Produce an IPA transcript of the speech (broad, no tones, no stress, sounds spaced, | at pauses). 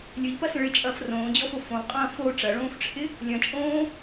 lʲ ø ʎ p ɐ s ə̃ ɭ ɪ t͡ʃʼ ɐː f r õː d͡ʑ ɔ f o f õ lˠ qʼ ɐ̃ː f o ʈ͡ʂ ɐ ɭ õː f ʈ͡ʂʰ ɪ | lʲ ɐ̃ t͡ʃʼ õː